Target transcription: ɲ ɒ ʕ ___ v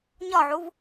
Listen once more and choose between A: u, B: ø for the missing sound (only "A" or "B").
A